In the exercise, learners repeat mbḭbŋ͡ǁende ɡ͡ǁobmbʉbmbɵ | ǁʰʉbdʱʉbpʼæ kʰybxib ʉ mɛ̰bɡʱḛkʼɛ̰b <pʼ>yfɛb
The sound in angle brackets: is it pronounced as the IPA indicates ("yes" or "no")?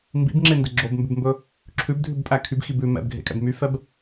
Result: no